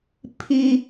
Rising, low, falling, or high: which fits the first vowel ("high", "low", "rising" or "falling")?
high